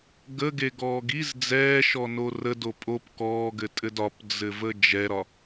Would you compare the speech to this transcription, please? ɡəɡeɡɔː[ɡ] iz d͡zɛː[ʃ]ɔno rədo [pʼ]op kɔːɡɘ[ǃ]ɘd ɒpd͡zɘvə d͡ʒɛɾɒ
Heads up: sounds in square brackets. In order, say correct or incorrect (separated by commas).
correct, correct, correct, incorrect